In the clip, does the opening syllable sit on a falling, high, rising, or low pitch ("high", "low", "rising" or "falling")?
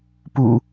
low